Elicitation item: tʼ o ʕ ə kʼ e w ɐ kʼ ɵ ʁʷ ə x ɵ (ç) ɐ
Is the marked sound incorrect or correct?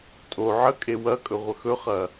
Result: incorrect